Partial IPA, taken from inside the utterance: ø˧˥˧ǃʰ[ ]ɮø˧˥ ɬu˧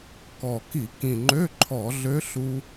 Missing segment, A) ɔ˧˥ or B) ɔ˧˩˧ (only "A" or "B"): B